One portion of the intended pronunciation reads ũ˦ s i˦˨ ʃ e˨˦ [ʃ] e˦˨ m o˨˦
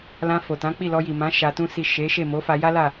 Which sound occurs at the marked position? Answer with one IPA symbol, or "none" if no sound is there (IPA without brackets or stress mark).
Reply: ʃ